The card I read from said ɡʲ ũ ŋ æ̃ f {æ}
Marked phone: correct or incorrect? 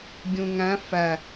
correct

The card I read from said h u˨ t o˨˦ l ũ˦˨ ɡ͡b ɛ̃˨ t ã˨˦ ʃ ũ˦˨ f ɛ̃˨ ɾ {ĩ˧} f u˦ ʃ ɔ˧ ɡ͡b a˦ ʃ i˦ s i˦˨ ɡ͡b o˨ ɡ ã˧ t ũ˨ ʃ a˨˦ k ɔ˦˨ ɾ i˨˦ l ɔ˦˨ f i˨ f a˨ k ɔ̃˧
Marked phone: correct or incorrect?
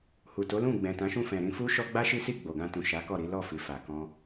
correct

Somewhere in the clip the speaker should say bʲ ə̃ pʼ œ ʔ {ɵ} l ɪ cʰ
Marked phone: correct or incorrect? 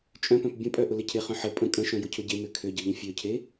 incorrect: ʊ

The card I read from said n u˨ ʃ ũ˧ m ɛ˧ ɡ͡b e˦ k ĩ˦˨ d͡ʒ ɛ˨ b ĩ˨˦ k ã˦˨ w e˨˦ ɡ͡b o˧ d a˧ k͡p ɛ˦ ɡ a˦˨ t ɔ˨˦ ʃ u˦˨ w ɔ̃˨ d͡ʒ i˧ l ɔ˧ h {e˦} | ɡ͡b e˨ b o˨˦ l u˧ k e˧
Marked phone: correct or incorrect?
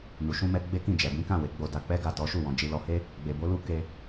correct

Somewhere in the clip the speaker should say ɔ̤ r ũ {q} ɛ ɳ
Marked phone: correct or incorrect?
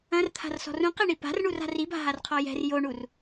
correct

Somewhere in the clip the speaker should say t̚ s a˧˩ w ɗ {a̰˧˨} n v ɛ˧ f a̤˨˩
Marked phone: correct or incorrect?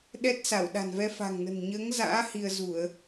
incorrect: a̤˨˩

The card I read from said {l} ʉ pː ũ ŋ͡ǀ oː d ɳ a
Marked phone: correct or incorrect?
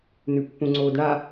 incorrect: n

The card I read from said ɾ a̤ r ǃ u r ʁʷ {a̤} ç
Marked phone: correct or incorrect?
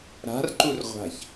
correct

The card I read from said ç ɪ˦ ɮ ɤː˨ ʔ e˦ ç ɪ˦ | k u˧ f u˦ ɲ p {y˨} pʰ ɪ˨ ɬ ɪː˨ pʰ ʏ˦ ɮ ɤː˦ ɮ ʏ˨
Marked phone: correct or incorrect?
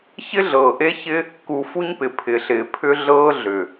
incorrect: ɪ˨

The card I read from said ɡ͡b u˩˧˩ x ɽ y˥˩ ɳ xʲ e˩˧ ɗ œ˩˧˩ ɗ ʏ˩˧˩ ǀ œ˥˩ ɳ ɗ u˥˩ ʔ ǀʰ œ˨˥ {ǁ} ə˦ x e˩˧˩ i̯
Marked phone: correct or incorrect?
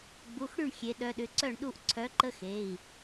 incorrect: ǃ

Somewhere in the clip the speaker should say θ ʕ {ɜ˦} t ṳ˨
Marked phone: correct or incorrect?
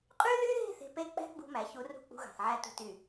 incorrect: æ˦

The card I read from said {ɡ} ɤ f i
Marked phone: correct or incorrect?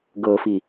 correct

